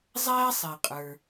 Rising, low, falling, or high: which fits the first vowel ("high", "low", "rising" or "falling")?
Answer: high